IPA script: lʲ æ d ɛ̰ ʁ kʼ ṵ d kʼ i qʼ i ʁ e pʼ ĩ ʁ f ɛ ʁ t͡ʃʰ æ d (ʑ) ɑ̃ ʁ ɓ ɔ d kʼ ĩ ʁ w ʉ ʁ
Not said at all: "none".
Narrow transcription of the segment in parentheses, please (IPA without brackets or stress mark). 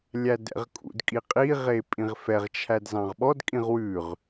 z